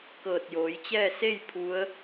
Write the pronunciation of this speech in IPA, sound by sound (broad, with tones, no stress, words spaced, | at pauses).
kɤː˧˩t̚joː˩˧jt͡ɕɛː˥˨ se˥˨j pʰu˧˥ə̯